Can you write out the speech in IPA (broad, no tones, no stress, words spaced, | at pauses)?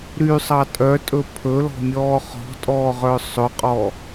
ɾysˤɑ tʼœtʼɵ pʰɵlɔ̤mʲɔː χɔ̤tʼɔːʁœ sˤɵqʼɔ